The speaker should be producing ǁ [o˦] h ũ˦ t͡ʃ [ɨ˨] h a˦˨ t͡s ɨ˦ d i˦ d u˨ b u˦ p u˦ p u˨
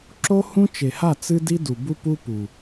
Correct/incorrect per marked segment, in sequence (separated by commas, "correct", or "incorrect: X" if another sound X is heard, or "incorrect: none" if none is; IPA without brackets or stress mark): correct, incorrect: e˨